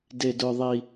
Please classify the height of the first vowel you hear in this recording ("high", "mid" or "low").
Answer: mid